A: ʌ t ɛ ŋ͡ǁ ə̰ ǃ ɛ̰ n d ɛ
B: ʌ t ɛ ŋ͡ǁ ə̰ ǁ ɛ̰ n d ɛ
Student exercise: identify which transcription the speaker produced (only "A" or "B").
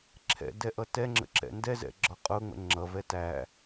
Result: B